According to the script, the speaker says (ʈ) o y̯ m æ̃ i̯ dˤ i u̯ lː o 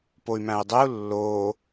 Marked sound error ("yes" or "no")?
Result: yes